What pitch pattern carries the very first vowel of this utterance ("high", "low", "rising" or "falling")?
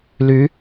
rising